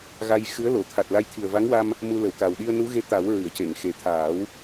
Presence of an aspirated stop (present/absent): present